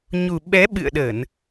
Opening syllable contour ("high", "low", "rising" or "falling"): low